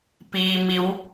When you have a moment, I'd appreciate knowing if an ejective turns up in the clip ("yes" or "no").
no